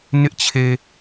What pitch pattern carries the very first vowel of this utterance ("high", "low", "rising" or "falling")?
high